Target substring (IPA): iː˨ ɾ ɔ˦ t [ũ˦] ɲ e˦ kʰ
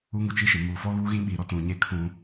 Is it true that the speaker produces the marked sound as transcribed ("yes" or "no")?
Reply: no